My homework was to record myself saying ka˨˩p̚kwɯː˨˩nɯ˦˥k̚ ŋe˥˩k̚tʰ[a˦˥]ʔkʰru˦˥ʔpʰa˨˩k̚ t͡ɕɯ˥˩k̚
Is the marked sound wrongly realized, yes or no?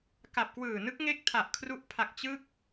yes